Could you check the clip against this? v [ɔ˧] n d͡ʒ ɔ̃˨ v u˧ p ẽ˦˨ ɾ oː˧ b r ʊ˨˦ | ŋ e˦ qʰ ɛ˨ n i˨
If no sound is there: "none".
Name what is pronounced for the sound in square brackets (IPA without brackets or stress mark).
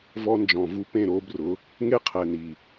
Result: ɔ˧